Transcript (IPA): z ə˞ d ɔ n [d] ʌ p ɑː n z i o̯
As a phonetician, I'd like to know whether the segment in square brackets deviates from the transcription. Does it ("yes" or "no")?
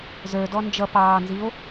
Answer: yes